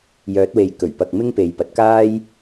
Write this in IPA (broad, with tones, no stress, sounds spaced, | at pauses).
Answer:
j œː˨˥ t̚ w e˨ j k ɵ˨˩ ɥ p ɐ˨ k̚ m ɪ˥ ŋ p e˨ j p ɐ˨ t̚ k aː˥ j